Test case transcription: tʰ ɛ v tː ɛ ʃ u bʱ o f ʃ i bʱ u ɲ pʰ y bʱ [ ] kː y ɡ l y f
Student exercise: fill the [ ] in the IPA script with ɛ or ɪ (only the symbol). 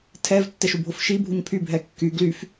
ɛ